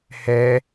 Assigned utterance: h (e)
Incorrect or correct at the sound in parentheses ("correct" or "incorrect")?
incorrect